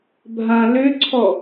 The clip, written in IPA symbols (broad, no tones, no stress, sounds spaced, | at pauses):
bʱ ã l ø ǀʰ ɔ